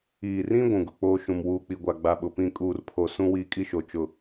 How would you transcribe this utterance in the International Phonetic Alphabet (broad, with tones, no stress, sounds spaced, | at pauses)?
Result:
iː˨ r ĩ˦ ɡʷ ũ˨ ɡ ʊ˨ k͡p oː˦ ʃ ũ˨ m w uː˨ k͡p i˨ ɡʷ a˨ ɡ͡b a˨ ɓ ʊ˨ p ĩ˦ kʼ uː˨ r pʰ o˨ s ũ˦ w iː˦ kʼ i˦ ʃ o˨ t͡ʃ ʊ˨